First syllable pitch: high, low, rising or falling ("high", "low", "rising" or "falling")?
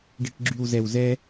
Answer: low